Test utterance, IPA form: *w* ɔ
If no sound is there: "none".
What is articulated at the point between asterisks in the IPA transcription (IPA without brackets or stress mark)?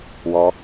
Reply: w